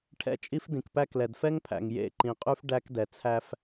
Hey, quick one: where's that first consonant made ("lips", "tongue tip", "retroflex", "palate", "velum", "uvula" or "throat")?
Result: retroflex